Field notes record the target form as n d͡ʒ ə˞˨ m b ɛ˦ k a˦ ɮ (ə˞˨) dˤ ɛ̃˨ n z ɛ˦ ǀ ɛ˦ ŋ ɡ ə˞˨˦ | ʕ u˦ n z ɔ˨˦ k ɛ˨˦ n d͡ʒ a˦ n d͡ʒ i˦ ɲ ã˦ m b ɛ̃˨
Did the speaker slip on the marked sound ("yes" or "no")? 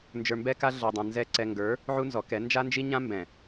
no